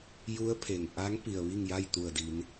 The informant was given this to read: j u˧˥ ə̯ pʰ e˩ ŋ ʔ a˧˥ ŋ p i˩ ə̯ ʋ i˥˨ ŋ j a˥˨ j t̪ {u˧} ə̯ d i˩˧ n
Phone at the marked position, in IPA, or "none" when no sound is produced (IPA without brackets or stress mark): u˧˩